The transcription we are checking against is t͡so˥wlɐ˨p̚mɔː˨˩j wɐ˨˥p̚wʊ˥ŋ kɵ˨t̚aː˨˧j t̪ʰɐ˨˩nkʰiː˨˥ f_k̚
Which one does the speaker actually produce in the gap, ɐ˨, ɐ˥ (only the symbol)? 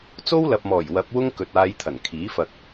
ɐ˨